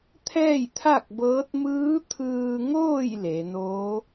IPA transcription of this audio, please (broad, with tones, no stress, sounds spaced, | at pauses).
t̪ʰ ɛː˥˨ j t̪ʰ a˥˨ k̚ b ɤː˧˥ t̚ m ɯː˧˥ t̪ʰ ɯː˧ ŋ oː˥˨ j l e˩˧ n oː˧˥